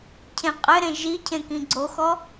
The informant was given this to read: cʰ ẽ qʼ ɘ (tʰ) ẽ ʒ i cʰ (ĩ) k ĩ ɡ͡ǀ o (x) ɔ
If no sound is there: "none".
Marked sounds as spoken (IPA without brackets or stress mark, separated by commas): ɾ, ẽ, x